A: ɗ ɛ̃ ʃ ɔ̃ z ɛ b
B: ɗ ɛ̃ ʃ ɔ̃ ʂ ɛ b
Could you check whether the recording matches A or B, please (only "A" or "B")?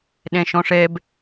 B